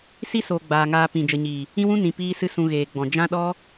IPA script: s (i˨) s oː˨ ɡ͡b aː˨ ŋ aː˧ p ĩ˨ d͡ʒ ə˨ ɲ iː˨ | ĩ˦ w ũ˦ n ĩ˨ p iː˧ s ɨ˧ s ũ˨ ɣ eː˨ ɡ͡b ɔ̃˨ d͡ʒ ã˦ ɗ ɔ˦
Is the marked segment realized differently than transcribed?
yes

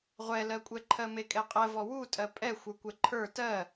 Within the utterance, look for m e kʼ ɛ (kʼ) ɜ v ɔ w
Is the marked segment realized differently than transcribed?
yes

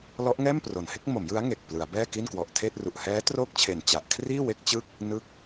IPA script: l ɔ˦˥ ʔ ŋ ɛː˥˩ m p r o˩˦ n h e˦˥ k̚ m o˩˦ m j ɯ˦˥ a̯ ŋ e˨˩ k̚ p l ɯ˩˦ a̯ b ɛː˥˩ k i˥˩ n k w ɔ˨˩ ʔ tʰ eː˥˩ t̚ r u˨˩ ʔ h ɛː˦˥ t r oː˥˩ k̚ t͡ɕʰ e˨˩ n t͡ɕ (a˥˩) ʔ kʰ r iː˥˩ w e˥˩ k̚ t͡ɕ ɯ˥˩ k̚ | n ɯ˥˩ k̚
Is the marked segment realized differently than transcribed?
yes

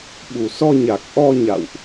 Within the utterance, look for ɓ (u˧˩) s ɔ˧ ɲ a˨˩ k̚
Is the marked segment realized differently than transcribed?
no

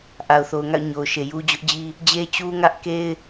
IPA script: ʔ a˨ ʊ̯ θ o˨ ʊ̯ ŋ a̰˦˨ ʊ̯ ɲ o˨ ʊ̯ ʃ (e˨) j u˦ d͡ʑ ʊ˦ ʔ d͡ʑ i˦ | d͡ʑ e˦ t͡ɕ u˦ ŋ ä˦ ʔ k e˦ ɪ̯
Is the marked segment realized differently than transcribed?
no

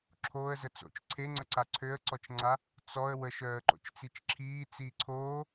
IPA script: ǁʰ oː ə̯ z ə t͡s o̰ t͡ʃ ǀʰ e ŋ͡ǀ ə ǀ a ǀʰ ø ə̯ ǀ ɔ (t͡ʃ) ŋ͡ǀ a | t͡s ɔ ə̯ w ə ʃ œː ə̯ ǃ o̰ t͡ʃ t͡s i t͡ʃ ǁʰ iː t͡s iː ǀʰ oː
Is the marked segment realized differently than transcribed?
no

